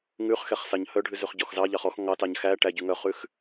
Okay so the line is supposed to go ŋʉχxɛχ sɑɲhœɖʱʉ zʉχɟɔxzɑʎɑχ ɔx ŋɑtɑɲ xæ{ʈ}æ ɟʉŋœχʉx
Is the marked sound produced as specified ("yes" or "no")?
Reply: yes